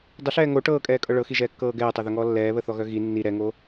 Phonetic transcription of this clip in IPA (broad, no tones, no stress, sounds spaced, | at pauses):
dˤ ə ɬ ɛː ŋ o ʈ ɤː kʼ ɛː kʼ ɤ ɭ ɤ x i ʒ ɛː kː ɤː ɡ ɛː tˤ ɛ ð œ ŋ ɔː lː ɛː β ə θ ɔ ɣ œ ɣ i nː i ɾ ɛ ŋ o